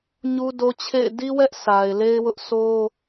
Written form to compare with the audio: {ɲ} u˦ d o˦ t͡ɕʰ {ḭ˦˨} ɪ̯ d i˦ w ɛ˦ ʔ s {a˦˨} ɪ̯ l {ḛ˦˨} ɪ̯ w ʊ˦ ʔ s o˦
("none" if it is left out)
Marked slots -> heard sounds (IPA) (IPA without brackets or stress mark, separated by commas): ɲ, ḛ˦˨, a˨, e˦